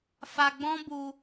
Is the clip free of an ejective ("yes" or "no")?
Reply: yes